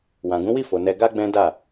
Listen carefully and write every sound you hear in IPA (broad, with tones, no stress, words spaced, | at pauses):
wã˨ɡũ˨˦wi˦˨fo˨ nɛ˧ɡa˦ɡ͡bɛ̃˦ da˦˨